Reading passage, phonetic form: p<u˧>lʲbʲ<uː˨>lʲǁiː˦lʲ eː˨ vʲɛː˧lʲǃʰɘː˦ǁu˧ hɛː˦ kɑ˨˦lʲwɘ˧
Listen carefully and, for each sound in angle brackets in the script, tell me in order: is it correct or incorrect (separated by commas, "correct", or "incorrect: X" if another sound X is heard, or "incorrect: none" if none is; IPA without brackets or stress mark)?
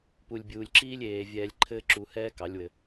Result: incorrect: u˨, correct